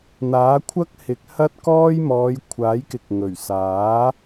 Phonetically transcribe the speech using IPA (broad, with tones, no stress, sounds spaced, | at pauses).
n̪ aː˨˥ kʷʰ ɐ˥ k̚ h ɪ˨˥ k̚ h ɐ˥ t̚ k ɔː˥ j m ɔː˨˧ j kʷʰ aː˨˥ j k ɪ˨ k̚ ŋ ɵ˨˩ ɥ s aː˨˥